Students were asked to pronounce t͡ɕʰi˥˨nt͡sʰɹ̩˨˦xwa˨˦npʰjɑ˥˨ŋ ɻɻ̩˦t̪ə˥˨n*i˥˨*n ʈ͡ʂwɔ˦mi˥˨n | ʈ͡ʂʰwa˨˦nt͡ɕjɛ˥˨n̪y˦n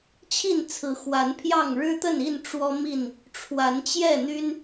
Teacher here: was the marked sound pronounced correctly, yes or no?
yes